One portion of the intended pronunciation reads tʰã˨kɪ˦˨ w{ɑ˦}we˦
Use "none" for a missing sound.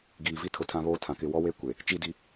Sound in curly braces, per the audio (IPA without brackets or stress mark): ɔ˦